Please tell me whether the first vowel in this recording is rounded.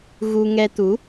yes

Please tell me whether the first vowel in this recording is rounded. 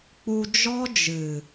yes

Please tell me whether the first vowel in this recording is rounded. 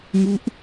yes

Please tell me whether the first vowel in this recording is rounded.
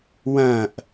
no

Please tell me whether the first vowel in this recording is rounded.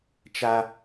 no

